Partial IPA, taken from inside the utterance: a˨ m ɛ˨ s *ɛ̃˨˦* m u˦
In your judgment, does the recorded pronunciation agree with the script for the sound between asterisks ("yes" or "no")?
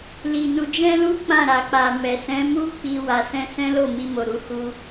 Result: yes